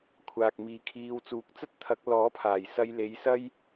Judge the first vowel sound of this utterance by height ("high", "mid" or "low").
low